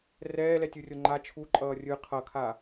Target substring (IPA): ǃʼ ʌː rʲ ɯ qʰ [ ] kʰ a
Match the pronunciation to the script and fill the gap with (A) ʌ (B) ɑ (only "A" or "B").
A